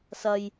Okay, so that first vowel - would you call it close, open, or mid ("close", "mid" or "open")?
open